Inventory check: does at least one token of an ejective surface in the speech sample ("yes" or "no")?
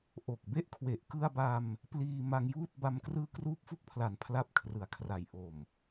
no